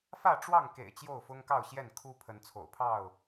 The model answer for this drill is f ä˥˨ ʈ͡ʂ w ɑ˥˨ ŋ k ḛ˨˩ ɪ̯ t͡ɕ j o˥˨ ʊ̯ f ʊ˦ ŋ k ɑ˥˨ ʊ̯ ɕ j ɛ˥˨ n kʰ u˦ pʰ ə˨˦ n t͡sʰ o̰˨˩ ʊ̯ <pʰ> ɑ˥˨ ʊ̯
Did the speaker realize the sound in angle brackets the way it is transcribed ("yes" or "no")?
yes